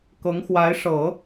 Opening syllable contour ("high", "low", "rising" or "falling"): rising